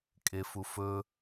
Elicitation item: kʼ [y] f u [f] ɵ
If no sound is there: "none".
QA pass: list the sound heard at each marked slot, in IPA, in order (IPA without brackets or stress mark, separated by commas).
e, f